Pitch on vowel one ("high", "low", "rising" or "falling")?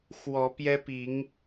rising